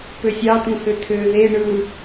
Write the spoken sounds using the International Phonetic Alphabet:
pøsʲɑ tũhøt̪ʰøːðe ɳɯ

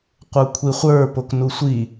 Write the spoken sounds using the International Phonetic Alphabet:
qʷə˞kʷʰiχʷə˞ poknusʷi

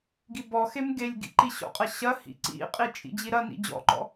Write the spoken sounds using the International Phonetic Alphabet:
ɡibɔxem ɡelʲɡḭ ǃiɕɔ̰qʼɐ ɕɐhḭ ǀḭqʼi t͡ʃʼḭd͡ʑiɾɐnḭ d͡ʑɔ̰ǃɔ̰

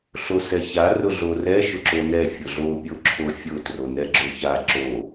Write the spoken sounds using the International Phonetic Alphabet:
ɬosɛça rʊɮorɛ ʃʊǁonɛ fʲʊɮo pʲoǁʰofʲʊ tronɛɡ͡ǁoça ǁo

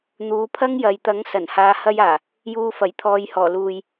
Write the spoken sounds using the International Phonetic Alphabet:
n̪uː˨˧pʰɐ˥ŋjɐ˨j t̪ɐ˨˥ŋ sɐ˨˩nhaː˨hɐ˧jaː˨˩ | juː˨fɐ˨˩jt̪ʰɔː˨jhɔː˨˩ luː˨j

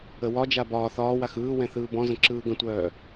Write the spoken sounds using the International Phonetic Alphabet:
əwɒd͡ʒa bɒː θɒːwax ɯːwɛ̃ θɯːbɔ̃zə̃ ǁɯːɡə̃tʷœː

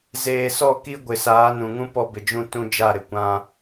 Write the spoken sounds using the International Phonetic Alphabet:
zeː˨sɔ˦˨ ki˦ɡʷɪ˨ saː˨˦nũ˨ŋũ˦ pɔ˦bɪ˨d͡ʒũ˦ tũ˦ d͡ʒa˦˨ɾɪ˨kʷã˦

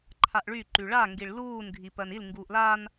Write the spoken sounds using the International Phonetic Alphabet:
ǃʰaʔɭy ǃyɭa ŋɡiɭluːn ɡʱipɜnil ŋɡuːʔlan

